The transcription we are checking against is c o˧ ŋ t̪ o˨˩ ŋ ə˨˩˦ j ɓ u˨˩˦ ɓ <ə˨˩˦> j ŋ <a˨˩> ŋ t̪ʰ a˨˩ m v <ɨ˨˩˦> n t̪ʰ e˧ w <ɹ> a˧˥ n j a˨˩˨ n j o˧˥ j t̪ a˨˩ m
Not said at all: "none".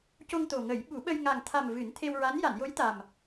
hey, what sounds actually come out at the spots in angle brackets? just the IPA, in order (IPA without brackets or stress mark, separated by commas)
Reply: ə˧, a˨˩, ɨ˨˩˦, ɹ